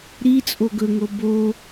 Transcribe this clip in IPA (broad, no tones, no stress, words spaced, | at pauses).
ɾi t͡sʼoɡɵŋo bo